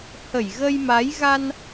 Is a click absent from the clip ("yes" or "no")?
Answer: yes